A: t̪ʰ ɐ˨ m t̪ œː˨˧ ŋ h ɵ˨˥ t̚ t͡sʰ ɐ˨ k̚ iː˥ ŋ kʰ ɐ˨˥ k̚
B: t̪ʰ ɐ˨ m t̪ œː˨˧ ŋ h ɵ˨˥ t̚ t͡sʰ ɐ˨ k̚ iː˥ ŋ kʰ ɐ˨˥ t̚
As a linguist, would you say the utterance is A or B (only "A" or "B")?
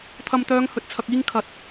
B